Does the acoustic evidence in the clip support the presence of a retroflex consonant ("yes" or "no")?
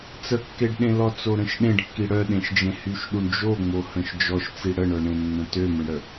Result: yes